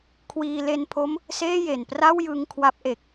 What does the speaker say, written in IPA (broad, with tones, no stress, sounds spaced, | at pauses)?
kʰ w iː˧ l e˧ n pʰ o˦˥ m | s eː˥˩ j e˨˩ n p r a˥˩ w j ɯ˧ ŋ kʰ w a˦˥ p̚ ʔ e˨˩ k̚